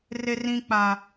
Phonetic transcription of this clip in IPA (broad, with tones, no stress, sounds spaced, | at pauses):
r e˦ r ĩ˦ k͡p a˦